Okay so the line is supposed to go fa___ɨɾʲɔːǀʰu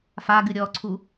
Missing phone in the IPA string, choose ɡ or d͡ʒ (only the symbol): ɡ